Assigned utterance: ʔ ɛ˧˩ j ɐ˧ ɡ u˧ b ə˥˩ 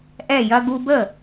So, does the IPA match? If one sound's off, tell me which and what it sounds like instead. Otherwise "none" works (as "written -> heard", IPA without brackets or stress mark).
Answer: none